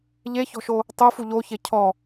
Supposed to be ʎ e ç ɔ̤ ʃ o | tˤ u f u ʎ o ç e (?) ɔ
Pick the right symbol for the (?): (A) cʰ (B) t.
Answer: A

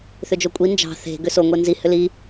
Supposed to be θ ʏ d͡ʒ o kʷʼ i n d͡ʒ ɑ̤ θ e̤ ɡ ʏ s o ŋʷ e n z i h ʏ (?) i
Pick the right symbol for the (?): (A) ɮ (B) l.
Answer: B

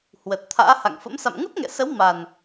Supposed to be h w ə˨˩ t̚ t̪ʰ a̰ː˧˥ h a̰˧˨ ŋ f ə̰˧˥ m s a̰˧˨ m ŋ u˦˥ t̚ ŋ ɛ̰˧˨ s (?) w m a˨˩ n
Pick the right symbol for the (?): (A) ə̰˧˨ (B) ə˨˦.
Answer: B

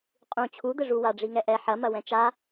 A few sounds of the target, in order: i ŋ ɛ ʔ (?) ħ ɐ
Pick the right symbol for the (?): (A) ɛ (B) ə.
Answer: A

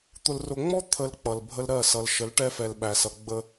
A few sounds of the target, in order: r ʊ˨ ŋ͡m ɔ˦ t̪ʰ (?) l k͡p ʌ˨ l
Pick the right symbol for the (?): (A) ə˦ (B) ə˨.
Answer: B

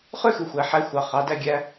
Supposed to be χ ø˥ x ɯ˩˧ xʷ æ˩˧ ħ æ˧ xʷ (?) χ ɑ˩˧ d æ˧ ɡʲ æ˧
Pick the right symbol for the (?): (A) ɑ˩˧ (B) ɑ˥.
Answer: A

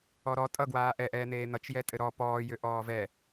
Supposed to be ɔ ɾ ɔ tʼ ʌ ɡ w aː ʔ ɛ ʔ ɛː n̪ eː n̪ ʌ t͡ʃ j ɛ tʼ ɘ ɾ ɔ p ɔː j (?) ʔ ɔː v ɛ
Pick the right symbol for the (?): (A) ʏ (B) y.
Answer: A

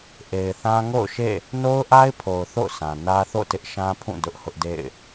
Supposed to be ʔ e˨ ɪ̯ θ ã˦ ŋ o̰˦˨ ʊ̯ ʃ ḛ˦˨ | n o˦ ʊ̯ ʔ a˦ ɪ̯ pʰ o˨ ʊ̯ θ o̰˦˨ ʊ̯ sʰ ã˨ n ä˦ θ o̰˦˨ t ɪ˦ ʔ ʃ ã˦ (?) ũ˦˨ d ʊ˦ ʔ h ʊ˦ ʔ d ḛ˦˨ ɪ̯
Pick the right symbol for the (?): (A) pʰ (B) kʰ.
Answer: A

